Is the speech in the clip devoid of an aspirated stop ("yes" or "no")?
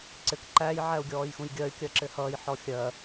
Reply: yes